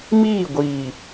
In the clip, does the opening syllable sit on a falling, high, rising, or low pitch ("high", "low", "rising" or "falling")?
falling